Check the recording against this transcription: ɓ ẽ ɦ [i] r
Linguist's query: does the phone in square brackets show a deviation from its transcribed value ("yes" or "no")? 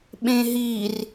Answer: no